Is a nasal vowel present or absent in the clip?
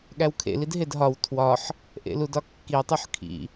absent